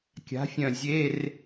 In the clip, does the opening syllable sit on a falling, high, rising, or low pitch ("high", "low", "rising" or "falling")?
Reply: rising